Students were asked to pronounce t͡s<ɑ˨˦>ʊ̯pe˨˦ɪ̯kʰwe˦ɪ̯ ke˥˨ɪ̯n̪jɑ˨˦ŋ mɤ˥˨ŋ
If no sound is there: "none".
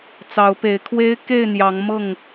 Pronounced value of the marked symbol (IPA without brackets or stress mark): ɑ˨˦